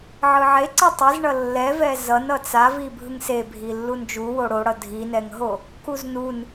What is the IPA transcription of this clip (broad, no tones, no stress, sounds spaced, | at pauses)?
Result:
ʕ ɯ ʕ e ǀ ʌ tˤ i z ɳ ʌ lː ɛ v ɛ z ʌ n ʌ t͡s a v i bʱ ɯ ŋ s e bʱ i lː u n d͡ʒ u w o ɽ o ɽ ʌ dʱ i n ɛ ŋ ɦ o | k u z n u n